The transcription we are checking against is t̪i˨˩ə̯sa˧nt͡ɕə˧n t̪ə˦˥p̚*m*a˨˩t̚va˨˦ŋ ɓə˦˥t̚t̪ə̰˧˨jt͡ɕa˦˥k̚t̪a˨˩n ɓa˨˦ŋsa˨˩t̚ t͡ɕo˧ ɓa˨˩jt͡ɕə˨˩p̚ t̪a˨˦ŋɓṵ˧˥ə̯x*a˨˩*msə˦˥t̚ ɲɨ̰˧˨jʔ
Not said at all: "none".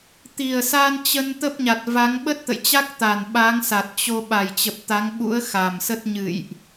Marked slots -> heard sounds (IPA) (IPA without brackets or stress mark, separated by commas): ɲ, a˨˩